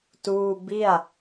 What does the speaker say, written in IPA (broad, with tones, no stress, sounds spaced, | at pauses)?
t uː˥˩ b i˥˩ a̯